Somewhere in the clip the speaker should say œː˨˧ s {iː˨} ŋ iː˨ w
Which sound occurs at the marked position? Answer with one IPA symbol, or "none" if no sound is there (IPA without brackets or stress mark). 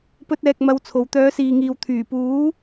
iː˨